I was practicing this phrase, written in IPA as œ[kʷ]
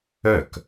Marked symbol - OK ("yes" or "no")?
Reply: no